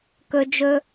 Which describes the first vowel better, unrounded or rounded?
rounded